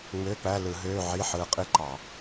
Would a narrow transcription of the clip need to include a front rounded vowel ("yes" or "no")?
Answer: yes